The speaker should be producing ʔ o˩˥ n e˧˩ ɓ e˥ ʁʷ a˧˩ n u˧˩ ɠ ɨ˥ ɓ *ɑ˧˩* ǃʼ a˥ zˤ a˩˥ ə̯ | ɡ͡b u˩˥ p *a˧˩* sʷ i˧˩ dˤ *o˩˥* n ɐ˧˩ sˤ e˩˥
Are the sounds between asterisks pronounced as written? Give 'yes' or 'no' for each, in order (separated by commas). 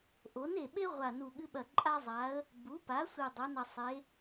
no, no, yes